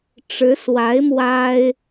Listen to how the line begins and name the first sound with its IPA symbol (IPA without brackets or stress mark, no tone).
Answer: ʈ͡ʂ